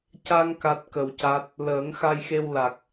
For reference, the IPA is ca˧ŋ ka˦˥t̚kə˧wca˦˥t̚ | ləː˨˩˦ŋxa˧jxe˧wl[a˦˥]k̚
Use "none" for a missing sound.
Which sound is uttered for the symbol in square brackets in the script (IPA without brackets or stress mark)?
a˨˩